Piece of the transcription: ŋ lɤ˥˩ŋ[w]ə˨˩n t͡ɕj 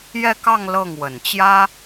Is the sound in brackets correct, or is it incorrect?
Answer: correct